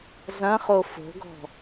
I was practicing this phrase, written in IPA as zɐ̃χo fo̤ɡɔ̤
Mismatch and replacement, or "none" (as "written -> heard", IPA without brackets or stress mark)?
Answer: none